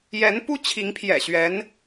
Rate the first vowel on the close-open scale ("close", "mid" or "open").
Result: mid